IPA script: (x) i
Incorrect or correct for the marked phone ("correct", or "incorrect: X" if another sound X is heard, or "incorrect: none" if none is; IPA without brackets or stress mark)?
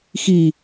correct